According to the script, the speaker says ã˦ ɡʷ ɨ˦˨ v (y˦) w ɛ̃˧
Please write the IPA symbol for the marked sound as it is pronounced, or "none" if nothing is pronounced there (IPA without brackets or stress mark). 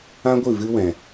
ɨ˦